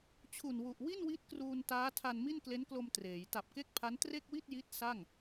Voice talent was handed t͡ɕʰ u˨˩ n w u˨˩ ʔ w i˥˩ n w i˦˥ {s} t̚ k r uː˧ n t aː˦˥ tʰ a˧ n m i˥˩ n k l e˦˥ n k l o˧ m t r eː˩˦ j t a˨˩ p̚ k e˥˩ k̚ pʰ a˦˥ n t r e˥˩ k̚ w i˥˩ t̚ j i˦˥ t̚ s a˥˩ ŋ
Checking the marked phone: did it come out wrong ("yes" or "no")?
yes